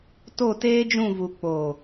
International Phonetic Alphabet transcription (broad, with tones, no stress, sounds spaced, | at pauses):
t o˦˨ t eː˦ d͡ʒ ũ˦˨ v u˨ k͡p oː˨